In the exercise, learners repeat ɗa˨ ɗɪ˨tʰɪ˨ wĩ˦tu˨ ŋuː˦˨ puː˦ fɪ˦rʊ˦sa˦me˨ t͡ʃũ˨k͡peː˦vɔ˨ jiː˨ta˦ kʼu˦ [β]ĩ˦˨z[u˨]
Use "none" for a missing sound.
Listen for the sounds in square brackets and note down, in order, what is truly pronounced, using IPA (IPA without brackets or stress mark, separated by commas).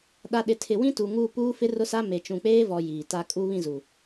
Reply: β, u˨